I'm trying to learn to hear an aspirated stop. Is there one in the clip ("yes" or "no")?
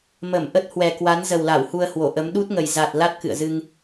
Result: no